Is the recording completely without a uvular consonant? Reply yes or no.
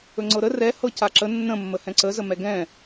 yes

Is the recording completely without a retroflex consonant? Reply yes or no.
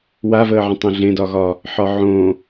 yes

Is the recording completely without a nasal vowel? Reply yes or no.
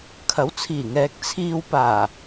yes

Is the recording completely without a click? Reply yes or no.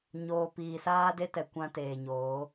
yes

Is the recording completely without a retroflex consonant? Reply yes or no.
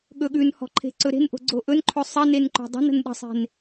yes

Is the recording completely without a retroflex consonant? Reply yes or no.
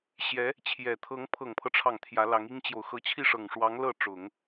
no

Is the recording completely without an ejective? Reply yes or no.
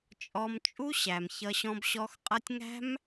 no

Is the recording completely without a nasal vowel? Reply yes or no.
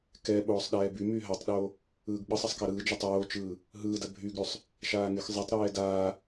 yes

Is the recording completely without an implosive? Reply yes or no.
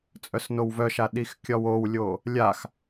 no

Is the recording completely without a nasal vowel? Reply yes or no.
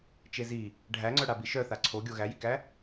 yes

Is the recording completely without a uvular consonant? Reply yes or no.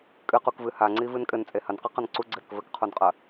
no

